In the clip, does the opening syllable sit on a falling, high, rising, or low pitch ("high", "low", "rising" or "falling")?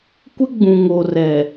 high